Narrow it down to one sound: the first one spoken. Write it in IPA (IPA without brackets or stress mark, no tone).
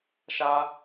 ʃ